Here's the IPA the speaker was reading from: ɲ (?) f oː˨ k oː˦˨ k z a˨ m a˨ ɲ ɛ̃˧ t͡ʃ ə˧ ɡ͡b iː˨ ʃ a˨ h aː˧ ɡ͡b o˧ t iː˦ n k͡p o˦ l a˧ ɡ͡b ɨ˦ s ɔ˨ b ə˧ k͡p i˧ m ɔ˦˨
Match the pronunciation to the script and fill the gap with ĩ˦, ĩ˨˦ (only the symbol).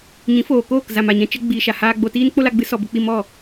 ĩ˨˦